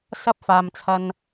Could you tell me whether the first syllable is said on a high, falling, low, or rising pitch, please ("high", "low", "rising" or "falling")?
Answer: high